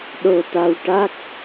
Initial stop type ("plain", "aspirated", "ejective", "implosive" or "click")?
implosive